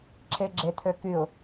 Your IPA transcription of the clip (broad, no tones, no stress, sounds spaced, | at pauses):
ǁʰ e ɡ͡ǁ e t̪ʰ ø k y ʊ̯